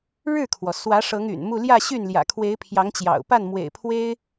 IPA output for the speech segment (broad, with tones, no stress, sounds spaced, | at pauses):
ɻ ɻ̩˥˩ kʰ w ɔ˩ s w ä˧˥ ʂ ɤ˧˥ ŋ y̰˨˩ n m u˥˧ l j ä˥˧ ɕ y˥˩ n l j ä̰˨˩ kʰ w e˧˥ ɪ̯ pʰ j ɑ˧˥ ŋ t͡ɕ j ɑ̰˨˩ ʊ̯ p a˥˩ n m w ḛ˨˩ ɪ̯ pʰ w e˥ ɪ̯